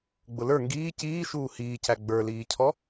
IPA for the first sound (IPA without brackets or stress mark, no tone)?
ɡ͡b